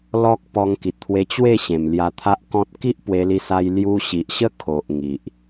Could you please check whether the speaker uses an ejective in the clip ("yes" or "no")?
no